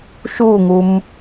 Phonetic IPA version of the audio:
ʃ u ŋ u m

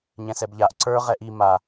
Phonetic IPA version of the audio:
ɲ ɛ̃ s ɛ b ʎ a ʔ ǀ ə˞ ʁ ɛ ʔ i m a

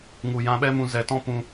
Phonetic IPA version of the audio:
ŋ u˨ j ã˧ ɓ ɛ˦ m ũ˧ z ɛ˨˦ t ɔ̃˦ p ũ˧

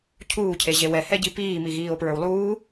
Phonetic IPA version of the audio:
cʰ uː cʰ e ʑ e w ɛ h ɛ ɟ i p iː m i ɣ iː o̯ p ɹ ə˞ w lˠ uː

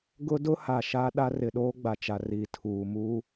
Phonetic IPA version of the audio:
ɡ ʊ˦ d ʊ˦ h a˨ ʃ a˦ ɗ a˦ r ɪ˨ ɗ oː˦ ɡ͡b a˨ t͡ʃ a˨ r i˨ tʰ uː˨ m uː˦

